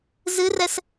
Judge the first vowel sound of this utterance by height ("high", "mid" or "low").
high